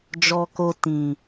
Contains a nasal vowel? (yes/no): yes